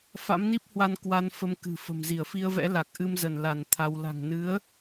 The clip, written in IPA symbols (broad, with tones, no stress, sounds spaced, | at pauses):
f a̰˧˥ m n i˦˥ p̚ h w a˧ n k w a˧ n f ə˧ m k ɨ̤˨˩ f ə̤˨˩ m z i˧˩ ə̯ f i˧ ə̯ v ɛ̰˧˥ l a˨˩ k̚ ʔ ɨ˧ m z ə˧˩ n l a˧˩ n t̪ʰ a˧ w l a̤˨˩ ŋ n ɨ˨˦ ə̯